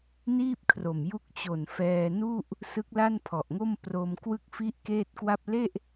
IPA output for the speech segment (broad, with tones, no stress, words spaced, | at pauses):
niː˥˩p̚kʰro˨˩mju˦˥k̚ t͡ɕo˨˩n fɛː˧nu˥˩ʔ | sɯ˦˥k̚la˥˩npʰɔ˨˩ʔŋo˥˩m pro˧mkwɯ˥˩k̚fi˥˩ʔ keː˥˩t̚kwa˥˩p̚ le˥˩ʔ